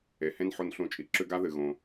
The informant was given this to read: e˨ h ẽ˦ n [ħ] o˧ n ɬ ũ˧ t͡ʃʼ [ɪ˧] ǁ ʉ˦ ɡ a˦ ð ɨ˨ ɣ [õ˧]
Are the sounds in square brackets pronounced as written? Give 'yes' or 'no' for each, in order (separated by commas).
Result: yes, no, yes